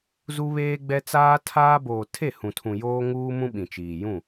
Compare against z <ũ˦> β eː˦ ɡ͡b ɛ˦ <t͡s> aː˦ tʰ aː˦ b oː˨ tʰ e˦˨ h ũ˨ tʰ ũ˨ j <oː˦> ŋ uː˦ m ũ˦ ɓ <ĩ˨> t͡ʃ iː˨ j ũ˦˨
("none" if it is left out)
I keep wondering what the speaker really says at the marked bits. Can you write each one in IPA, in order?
u˦, t͡s, oː˦, ĩ˨

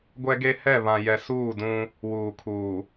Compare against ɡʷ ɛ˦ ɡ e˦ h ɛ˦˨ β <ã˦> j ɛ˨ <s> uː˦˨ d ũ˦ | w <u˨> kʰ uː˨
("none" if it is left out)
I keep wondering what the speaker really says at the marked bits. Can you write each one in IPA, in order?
ã˨, s, uː˨

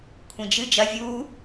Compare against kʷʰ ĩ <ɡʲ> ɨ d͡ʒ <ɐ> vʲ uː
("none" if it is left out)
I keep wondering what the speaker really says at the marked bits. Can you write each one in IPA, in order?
d͡ʒ, ɐ

